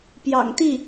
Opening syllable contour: low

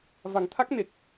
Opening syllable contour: low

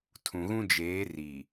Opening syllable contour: low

